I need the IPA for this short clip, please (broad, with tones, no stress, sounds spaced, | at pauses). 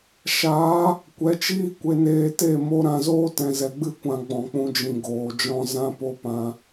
ʃ aː˨˦ | kʷ ɛ˨˦ t͡ʃ iː˦ kʷ e˧ n eː˧ t e˦˨ m o˦ ɾ ã˧ z oː˦ t ɛ̃˧ z ɛ˧ ɡ͡b ɨ˦ kʷ ã˧ ɡ͡b ɔ̃˨ k͡p ũ˧ d͡ʒ ĩ˨ ɡ oː˨ d͡ʒ ɔ̃˦ z ã˦ p o˦ p ã˧